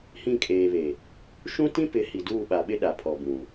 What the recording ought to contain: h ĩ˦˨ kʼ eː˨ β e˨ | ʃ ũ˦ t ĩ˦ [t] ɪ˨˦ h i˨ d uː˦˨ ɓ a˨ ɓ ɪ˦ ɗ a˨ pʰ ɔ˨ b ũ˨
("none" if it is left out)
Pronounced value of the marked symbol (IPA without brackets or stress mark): p